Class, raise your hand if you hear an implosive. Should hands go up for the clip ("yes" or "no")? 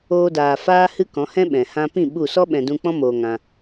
yes